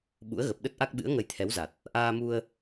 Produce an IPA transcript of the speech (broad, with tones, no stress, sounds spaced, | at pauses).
ɓ ṵ˧˥ ə̯ ɣ ə˨˩ p̚ ɗ ə˦˥ t̚ ʔ a˦˥ k̚ ɓ ɨ̰˧˥ ə̯ ŋ ə˧ j t̪ʰ ɛ˨˦ w z a˨˩ t̚ | ʔ aː˧ m u˧ ə̯